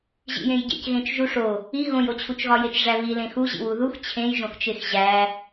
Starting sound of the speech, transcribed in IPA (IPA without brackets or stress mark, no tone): ʑ